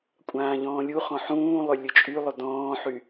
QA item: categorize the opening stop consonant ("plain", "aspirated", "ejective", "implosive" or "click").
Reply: ejective